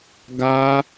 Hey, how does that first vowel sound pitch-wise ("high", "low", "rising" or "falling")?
high